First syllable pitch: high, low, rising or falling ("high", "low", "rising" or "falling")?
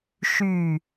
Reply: falling